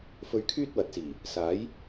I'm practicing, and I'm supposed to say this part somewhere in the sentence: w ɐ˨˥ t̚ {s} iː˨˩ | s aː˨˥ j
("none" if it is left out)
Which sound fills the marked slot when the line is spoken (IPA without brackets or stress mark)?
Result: s